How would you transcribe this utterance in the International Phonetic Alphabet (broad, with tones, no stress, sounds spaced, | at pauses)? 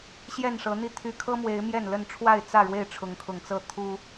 ɕ j ɛ˥˨ n ʂ ɤ˨˦ n̪ i˥˨ t̪ʰ y˨˦ kʰ ɤ˦ m w e˨˦ ɪ̯ m j ɛ˥˨ n l ə˥˨ n ʈ͡ʂʰ w a˥˨ ɪ̯ t͡s ä˥˨ ɻ w e˥˨ ɪ̯ ʈ͡ʂʰ ʊ˨˦ ŋ kʰ ʊ˨˩ ŋ t͡s ɤ˥˨ t̪ʰ u˦